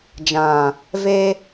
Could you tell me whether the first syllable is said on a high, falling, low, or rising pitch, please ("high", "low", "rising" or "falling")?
low